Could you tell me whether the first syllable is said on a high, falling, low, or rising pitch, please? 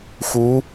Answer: rising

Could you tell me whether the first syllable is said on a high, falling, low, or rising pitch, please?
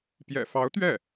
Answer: low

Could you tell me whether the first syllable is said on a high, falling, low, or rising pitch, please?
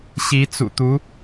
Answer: rising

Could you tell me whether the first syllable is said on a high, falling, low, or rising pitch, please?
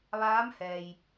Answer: rising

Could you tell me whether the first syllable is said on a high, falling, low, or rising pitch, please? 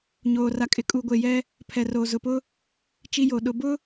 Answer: low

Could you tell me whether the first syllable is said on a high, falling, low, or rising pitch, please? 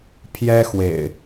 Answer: high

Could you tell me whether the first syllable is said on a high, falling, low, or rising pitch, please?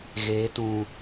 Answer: rising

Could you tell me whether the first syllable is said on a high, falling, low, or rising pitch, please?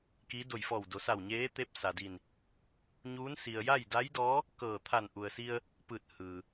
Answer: rising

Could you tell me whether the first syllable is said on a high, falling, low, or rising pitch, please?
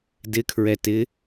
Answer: rising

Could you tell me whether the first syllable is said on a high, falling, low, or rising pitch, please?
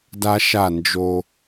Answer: high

